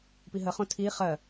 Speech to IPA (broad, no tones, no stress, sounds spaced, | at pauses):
p i ɦ ə χ õ tʰ i χ ɜ